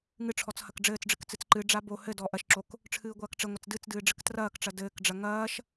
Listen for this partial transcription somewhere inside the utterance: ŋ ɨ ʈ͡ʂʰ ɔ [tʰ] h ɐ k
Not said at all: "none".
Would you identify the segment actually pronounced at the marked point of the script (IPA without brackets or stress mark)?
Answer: t͡s